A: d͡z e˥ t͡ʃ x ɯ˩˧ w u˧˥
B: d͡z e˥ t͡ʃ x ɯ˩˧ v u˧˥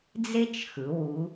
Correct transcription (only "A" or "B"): A